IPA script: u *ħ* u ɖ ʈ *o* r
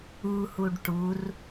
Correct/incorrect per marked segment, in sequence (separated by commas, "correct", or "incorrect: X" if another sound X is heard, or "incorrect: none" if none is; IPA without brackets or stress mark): incorrect: h, incorrect: u